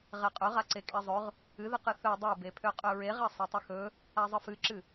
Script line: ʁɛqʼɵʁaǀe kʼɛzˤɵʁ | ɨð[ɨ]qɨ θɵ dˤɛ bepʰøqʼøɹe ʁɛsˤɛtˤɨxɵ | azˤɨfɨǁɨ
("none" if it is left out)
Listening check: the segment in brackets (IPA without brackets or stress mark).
ɨ